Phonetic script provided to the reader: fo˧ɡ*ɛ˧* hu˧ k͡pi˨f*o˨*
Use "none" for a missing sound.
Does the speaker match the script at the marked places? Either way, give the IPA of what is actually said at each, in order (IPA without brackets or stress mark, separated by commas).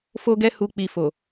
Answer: ɛ˧, o˨